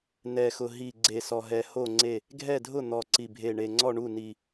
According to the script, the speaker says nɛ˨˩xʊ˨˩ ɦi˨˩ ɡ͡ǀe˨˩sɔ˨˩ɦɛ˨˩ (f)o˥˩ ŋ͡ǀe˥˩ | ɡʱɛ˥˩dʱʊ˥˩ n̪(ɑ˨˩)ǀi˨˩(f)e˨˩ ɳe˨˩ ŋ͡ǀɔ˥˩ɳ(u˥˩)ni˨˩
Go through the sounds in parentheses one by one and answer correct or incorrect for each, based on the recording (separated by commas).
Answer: incorrect, incorrect, incorrect, correct